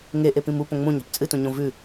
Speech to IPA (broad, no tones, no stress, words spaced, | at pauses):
ŋe ʔepĩmu põŋ͡mũɲa̤p t͡sʼɨtũɲõ vʉ